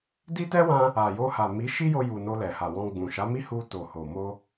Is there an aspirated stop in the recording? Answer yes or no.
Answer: no